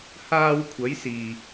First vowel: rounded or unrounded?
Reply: unrounded